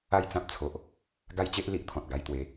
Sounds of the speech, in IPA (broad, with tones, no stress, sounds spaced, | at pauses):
a˥˧ j t͡s ã˦ p̚ t͡sʰ o˨ ʔ | ɡ a˦ j t͡ɕ e˦ ʔ l i˦ ʔ t̪ʰ ɔ̃˨ t̚ ɡ a˧ j t̪ w e˨˦